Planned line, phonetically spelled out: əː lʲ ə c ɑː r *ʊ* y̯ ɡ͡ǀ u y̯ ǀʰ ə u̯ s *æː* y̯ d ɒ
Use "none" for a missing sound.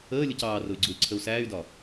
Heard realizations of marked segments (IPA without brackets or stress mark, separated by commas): ʊ, æː